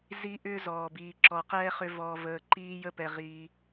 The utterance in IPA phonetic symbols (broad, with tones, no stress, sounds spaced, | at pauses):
z i˧ ʔ ʏː˧ z ɔː˩ b iː˩ ǁ ɔ˩ q ɛː˥ χ ʏ˧ v ɔː˩ v əː˩ ǃ iː˧ j ə˧ p ɛ˩ ʁ iː˩